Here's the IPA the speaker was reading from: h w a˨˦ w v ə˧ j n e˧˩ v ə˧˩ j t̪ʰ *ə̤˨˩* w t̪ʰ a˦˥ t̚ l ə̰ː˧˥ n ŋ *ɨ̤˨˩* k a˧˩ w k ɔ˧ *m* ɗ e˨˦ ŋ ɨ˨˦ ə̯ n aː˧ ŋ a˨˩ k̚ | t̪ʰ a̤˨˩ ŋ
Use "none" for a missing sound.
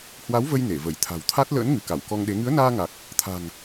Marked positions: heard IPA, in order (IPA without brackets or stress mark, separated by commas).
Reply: a̤˨˩, ɨ˧˩, ŋ